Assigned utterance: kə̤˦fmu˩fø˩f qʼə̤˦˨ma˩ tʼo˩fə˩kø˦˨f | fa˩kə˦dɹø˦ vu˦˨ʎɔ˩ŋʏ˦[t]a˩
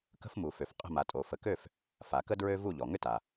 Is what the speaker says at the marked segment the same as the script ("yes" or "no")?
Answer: yes